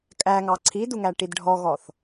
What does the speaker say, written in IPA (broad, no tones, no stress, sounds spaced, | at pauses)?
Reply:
kʼ æ ŋ ɑ ǀʰ i d u ŋ æ ʈ i d ɖʱ ɔ ɣ ɔ θ